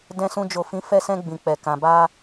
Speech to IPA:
dɛ̃˧sũ˧ d͡ʒo˨fĩ˨˦ fɛ˧sɛ̃˧ ɡ͡bĩ˨k͡pɛ˨ kã˨ba˧

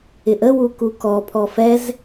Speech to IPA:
ɪʔəwu kukɔpʰɔ fɛz

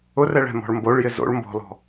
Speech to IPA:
ʊrɛɭ ɛ̤mɔ̤ɭmboɭjɪ zo̰ɭ mbɔ̤lɔ̤

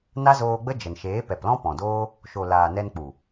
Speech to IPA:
na˦zoː˧ɡ͡bə˦ d͡ʒə˨nʃeː˨˦ pɛ˨plɔ̃˦ pɔ̃˨doː˦ | ʃo˨laː˨ nɛ˧nk͡pu˨

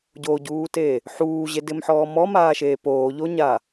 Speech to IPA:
ɟoɟuːte | ħuːʑedɪmħɔː mɔmaːʃeː poːʎoɲa

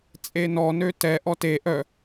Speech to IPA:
t͡sʼenɔ nøtɛ ʔɔte ʔœ

